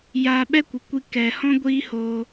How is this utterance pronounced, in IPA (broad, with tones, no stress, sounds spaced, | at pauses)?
j aː˧ ɓ ɛ˦ kʷ ɨ˨ kʷ i˧ k ɛ˨ h ɔ̃˧ ɡʷ iː˦ h oː˧